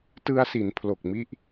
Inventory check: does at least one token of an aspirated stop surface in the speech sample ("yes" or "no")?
yes